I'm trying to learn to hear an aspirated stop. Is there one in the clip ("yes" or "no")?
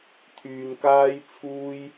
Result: yes